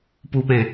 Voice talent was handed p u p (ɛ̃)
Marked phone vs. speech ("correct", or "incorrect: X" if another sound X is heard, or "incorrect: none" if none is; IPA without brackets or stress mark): correct